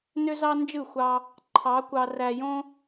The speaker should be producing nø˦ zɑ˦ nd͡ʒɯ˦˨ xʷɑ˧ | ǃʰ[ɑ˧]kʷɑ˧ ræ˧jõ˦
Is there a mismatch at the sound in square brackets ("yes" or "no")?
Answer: yes